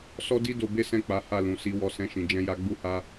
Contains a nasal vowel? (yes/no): yes